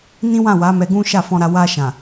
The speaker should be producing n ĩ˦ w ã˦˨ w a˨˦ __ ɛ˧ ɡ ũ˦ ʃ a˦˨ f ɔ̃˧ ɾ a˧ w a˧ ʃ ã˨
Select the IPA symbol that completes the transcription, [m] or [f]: m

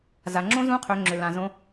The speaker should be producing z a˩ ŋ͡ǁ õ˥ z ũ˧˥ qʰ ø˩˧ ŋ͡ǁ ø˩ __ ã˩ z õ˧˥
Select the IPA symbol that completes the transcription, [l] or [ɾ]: l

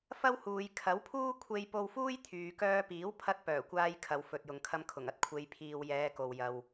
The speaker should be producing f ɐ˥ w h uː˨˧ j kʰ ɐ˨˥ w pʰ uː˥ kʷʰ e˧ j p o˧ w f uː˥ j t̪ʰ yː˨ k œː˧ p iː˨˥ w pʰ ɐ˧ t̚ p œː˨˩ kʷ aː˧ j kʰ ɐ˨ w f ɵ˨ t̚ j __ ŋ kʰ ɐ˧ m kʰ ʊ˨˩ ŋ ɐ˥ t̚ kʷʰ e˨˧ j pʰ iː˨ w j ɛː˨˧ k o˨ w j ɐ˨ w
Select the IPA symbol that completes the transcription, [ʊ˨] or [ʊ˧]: ʊ˨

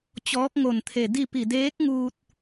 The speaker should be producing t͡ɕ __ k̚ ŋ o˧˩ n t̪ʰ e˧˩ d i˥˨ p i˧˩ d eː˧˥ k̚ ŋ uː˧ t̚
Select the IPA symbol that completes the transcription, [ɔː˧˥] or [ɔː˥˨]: ɔː˧˥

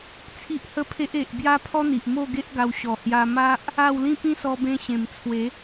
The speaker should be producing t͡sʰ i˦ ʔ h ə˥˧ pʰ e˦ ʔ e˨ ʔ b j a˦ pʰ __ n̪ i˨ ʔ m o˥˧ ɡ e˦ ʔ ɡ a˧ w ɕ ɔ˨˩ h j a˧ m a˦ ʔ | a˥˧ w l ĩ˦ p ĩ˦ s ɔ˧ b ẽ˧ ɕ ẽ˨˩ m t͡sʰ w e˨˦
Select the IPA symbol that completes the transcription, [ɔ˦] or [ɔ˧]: ɔ˦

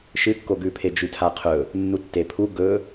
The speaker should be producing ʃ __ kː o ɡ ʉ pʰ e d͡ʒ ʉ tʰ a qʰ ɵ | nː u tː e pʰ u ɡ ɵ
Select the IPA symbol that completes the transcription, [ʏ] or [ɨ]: ɨ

